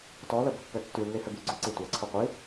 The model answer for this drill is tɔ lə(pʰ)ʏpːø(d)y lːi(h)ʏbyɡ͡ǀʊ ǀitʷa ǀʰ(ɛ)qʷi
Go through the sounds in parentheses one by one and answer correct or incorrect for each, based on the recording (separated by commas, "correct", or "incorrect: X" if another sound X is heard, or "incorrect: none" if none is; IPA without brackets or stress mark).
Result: incorrect: b, incorrect: tː, correct, incorrect: ʏ